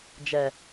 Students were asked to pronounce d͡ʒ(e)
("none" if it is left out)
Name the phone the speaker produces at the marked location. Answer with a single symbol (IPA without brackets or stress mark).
ɛ